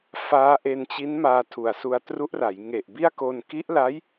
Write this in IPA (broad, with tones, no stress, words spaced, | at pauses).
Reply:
faː˦˥ ʔe˧nt͡ɕi˦˥n maː˧tʰu˨˩a̯su˧a̯ tru˦˥ʔra˩˦jŋe˨˩ʔbi˥˩a̯ ko˧n ki˦˥ʔla˦˥j